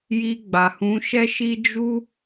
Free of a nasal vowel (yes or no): no